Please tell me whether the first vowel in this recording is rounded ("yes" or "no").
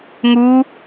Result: yes